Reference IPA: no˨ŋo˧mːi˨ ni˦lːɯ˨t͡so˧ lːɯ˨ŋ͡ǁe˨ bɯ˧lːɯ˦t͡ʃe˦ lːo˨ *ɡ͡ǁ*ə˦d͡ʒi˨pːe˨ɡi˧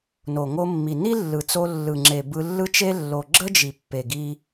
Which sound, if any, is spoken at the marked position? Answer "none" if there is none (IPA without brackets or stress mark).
ɡ͡ǁ